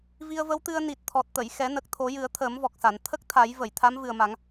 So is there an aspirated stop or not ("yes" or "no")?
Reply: yes